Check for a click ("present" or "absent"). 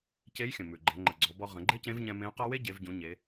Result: present